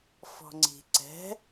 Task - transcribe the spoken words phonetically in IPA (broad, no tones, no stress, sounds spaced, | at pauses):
f ɔ̤ ŋ͡ǀ i̤ ǀ ɛ̤